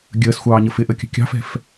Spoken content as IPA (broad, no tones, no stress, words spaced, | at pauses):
ɡʲəːsxʷɑːɲə fɪʔəkʲə̤ kʲɑ̤fɛ̤f